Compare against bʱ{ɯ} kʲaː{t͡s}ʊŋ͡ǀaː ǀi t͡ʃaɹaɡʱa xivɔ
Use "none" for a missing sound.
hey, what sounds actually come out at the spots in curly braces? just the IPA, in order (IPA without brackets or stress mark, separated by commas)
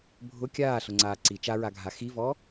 ʊ, ɬ